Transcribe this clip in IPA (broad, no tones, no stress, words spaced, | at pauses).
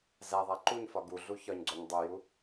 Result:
zæðˤæ ǃuɲfɒ ɡuɮu çɒɲɡ͡ǀoɲ dˤoju